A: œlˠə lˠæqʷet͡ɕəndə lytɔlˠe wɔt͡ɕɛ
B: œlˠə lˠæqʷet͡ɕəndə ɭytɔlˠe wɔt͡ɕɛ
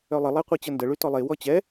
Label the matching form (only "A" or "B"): B